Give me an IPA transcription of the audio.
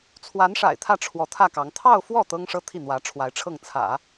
t͡sʰ w a˧˥ n ʂ a̰˨˩ ɪ̯ t̪ʰ ä˥˩ ʈ͡ʂʰ w ɔ˧˥ t̪ʰ ä˥˩ k ɑ˧˥ ŋ t̪ʰ ɑ˥˧ ʊ̯ f w ɔ˥˩ t̪ ɤ˥ ŋ ʂ ɤ˥ t̪ʰ i˥˩ n̪ w ä˧˥ ʈ͡ʂʰ w a˧˥ ɪ̯ ʈ͡ʂʰ ɤ˥˩ ŋ t͡sʰ ä̰˨˩˦

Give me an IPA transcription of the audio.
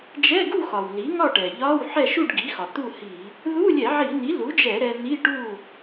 d͡ʒ ɛ˧˥˧ ɡ u˥˨ x ɒ˩ w l i˩˥ ŋ ɒ˥˨ ʈ ɛ˩ ʎ ɒ˧˥˧ w ħ ɛ˥˨ ʃ u˥˨ ɖ ɡ i˩˥ x ɒ˩ t̪ u˥˨ h i˧˩˧ | ð u˧˥˧ lʲ ɛ˧˩˧ ʕ i˧˩˧ n̪ i˩˥ l u˩˥ d͡ʒ ɛ˧˩˧ ɾ ɛ˧ n̪ i˧˥˧ ʈ u˥˨

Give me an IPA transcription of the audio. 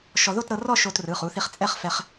ʃ ɔ˧ ð o˥˨ t ɾ ɤ˧ r ɔ˥˨ ʃ o˧ t r ɯ˩˧˩ χ u˩˧˩ θ i˧ χ t͡sʼ ɛ˥˨ χ f ɛ˧ χ

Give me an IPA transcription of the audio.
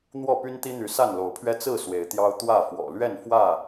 n̪ w ɔ˥˨ p y˦ n t̪ i˦ n̪ y˨˦ s a˥˨ n l o˨˦ ʊ̯ pʰ ɥ ɛ˦ t͡s ɹ̩˥˨ s w e˨˦ ɪ̯ t̪ j ɑ˦ ʊ̯ t̪ w ä˥˨ f w ɔ̰˨˩ l ɥ ɛ˥˨ n f w ä˥˨

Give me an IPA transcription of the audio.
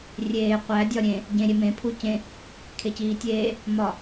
rʲ eː qʷ æ dʲ ɒ ɾʲ ẽ | ɟ ẽ ɾʲ e m ẽ pʰ u c ẽ | kʰ e c iː tʲ eː | m ɒ

